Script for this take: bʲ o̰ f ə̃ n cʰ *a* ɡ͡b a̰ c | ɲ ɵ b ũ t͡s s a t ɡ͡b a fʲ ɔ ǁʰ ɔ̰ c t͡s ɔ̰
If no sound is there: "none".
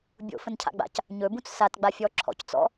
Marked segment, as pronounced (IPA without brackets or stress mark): a̰